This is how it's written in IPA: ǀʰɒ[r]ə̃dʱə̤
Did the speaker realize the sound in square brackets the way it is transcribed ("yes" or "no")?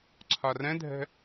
yes